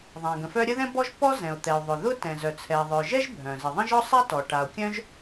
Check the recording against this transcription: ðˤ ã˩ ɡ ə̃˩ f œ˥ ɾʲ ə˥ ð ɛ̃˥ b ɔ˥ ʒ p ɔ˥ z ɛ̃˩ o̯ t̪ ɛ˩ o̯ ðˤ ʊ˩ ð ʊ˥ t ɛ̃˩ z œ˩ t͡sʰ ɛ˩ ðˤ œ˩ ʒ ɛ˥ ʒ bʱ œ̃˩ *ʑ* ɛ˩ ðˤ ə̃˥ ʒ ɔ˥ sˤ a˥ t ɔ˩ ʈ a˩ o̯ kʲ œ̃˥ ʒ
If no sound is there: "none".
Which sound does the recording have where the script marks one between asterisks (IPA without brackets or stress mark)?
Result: z